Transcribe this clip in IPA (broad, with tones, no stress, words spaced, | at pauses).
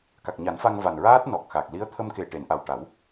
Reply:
ka˨˩k̚ɲa˨˩˦nfa˧ŋ va˨˩nɹaː˦˥t̚nɔ˨˩k̚ xa˨˩k̚ li˧˥ə̯t̪ʰə˧m ke˨˩ʈe˨˩˨nʔa˨˩w ʈa˨˩˦w